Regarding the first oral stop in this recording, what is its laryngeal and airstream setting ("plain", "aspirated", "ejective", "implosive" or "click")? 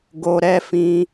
plain